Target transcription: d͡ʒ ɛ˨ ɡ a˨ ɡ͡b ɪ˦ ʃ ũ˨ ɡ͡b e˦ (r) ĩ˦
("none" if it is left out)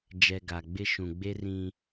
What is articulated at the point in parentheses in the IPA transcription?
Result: r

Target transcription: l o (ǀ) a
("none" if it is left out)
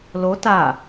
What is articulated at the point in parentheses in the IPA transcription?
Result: t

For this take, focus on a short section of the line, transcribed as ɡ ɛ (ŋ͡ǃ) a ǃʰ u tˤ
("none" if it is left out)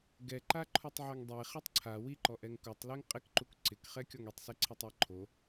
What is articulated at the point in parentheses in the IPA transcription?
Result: ǃ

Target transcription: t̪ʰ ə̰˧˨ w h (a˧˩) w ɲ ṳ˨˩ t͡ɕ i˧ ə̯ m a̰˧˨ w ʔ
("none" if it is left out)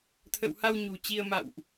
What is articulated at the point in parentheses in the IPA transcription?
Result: a˧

